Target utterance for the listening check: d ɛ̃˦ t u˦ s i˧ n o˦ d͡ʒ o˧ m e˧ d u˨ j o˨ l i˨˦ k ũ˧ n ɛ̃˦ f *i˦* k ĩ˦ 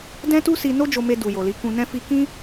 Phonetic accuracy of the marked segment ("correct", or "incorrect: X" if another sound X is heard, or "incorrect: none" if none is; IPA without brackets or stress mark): correct